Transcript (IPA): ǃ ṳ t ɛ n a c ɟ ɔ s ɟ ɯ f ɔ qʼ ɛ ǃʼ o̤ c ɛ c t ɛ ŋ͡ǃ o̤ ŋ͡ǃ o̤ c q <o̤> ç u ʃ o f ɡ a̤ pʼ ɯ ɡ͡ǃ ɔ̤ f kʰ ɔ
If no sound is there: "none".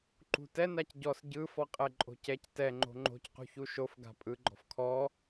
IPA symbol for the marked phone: ṳ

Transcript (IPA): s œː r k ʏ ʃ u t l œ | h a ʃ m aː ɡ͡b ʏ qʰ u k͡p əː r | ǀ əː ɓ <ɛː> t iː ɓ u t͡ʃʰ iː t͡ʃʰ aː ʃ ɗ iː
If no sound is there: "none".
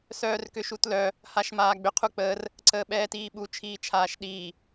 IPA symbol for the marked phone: ɛː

